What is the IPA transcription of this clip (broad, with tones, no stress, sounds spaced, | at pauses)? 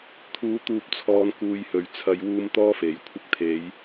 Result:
t̪ʰ uː˨˥ t̪ uː˨ p̚ t͡sʰ ɔː˨ n k uː˧ j h ɵ˨˧ ɥ t͡sʰ ɐ˨˧ j w uː˧ m t̪ ɔː˥ f e˨˩ j kʷʰ ɪ˧ k̚ t̪ʰ e˨˧ j